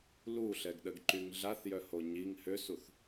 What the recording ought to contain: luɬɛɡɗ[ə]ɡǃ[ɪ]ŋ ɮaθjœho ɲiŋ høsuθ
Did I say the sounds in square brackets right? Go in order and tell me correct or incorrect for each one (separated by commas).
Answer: correct, incorrect